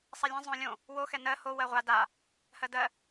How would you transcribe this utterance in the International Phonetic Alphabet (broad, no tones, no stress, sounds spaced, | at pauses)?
sˤ ɛ lʲ ɛ̃ zˤ õ lʲ õ | w o x ɛ n ɜ h o w ɜ ʁʷ a d a | h ɜ d ɜ